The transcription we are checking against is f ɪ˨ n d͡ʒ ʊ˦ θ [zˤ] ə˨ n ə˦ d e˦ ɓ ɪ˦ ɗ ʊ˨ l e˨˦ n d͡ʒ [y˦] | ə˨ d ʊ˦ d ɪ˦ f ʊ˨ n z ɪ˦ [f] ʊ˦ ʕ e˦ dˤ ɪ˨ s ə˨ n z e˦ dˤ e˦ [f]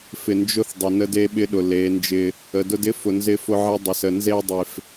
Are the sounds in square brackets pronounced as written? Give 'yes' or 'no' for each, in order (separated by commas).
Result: no, no, yes, yes